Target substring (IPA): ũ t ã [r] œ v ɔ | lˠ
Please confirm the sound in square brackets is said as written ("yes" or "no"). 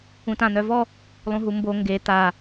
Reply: no